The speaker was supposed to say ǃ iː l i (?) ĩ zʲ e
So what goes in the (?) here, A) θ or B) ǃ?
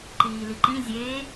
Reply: B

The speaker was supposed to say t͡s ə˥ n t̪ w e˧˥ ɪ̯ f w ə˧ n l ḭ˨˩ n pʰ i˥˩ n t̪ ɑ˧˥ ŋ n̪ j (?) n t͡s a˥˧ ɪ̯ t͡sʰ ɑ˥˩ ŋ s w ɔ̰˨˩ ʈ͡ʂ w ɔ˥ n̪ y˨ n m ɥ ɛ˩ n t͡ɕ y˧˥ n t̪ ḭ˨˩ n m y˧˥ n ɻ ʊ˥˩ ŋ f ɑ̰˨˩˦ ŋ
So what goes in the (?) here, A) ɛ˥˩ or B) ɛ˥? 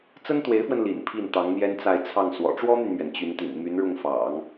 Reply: B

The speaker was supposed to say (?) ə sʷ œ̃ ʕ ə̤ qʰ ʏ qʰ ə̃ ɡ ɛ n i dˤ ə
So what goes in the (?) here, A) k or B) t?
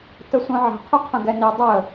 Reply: B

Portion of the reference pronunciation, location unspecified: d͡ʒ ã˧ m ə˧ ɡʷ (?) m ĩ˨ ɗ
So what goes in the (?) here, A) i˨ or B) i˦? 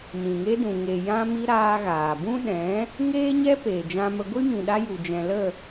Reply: B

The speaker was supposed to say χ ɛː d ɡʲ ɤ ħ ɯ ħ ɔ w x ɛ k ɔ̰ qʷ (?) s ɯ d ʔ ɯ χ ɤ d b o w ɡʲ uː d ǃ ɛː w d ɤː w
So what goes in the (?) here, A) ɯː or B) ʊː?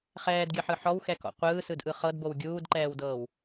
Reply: A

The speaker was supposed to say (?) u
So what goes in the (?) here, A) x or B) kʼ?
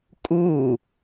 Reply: B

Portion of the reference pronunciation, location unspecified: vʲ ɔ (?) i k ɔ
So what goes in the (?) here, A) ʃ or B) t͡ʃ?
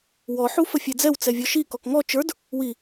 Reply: A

